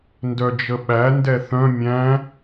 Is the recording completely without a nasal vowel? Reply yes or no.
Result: no